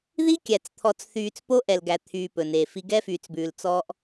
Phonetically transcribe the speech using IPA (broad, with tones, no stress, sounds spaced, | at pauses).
ð i˦ kʲ æ˨ t͡s t̪ʰ ɔ˨ t͡s θ yː˨ t͡s p o˦ ʔ ɛ˨ l ɡ æ˨ t̪ʰ yː˨ p ɵ˨ n e˨ f i˦ ɡ ɛ˦ f yː˨ t͡s b ʉː˨ l t͡s ɔː˦ ʔ